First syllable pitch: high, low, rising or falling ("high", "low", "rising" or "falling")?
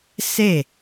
falling